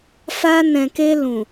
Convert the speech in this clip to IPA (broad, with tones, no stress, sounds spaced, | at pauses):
f a˧ n ɛ̃˨ k e˧ l ũ˨